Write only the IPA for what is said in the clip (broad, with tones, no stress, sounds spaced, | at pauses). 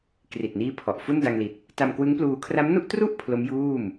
k r i˨˩ t̚ n iː˦˥ pʰ ɔ˨˩ ʔ f u˥˩ n d a˧ ŋ l i˨˩ t̚ | t a˧ m k w ɯ˦˥ ŋ p l uː˧ kʰ r a˦˥ m n u˥˩ ʔ t r u˥˩ ʔ pʰ l o˦˥ m j uː˥˩ m